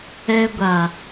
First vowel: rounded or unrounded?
unrounded